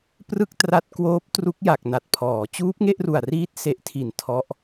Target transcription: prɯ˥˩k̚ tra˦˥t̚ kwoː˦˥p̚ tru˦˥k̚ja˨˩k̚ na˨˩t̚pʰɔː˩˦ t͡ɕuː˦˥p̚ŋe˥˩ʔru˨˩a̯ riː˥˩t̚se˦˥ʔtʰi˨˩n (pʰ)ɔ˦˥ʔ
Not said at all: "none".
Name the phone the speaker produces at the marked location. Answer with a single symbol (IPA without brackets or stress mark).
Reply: tʰ